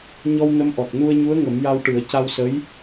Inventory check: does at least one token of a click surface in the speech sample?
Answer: no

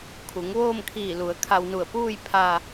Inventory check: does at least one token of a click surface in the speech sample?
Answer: no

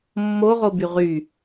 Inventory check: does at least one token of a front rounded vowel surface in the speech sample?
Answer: yes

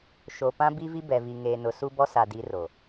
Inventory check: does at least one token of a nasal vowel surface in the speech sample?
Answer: yes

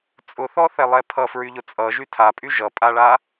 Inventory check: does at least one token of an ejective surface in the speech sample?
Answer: yes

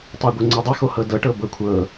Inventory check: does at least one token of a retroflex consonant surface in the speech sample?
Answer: yes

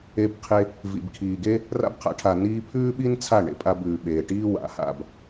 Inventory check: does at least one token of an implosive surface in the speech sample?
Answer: yes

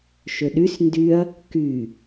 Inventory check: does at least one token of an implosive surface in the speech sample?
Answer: yes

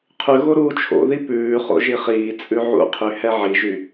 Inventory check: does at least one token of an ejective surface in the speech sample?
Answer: yes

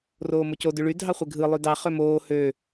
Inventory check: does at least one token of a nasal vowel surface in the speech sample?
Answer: no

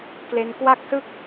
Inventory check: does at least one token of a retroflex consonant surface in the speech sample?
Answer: no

